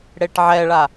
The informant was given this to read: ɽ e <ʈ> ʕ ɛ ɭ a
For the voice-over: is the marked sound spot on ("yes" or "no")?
yes